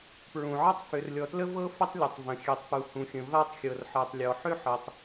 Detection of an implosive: absent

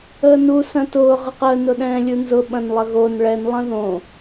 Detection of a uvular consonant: present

